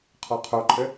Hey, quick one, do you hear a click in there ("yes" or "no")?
yes